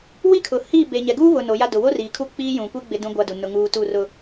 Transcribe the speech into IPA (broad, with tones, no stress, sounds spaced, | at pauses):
w i˦ kʰ ʊ˨ h i˦˨ b e˨ ɲ ɛ˨ ɡ uː˦ β ʊ˨ n o˨˦ j a˦ d ʊ˨ w o˦ r iː˨ kʰ u˦˨ k͡p iː˦ j ũ˨ kʷ i˦ ɡ͡b ɪ˦ d ũ˦ ɡʷ a˦ d u˨ n ʊ˦ ŋ uː˦ t u˦˨ r ʊ˨